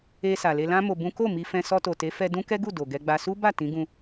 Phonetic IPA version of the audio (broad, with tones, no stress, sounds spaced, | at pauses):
e˧ s a˨ l e˧ l ã˦ m o˧ b ũ˦ k o˦˨ m i˧ f ɛ̃˧ s ɔ˧ t o˨ t e˨˦ f ɛ˧ d ũ˦ k ɛ˦ ɡ u˦˨ d o˨ ɡ ɛ˧ ɡ͡b a˧ s u˦ b a˦˨ t ĩ˨˦ ɡ ũ˧